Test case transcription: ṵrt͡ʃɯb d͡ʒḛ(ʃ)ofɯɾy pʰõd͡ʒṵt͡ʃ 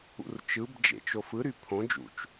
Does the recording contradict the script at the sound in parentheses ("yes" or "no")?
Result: yes